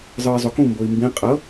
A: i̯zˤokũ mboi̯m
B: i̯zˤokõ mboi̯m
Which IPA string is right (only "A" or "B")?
A